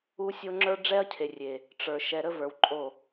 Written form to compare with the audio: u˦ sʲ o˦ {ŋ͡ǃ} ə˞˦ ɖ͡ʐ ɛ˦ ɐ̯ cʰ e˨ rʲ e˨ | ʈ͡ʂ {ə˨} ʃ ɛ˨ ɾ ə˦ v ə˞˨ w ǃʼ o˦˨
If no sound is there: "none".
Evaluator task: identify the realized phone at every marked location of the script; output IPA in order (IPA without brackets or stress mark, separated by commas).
ŋ͡ǁ, ə˞˨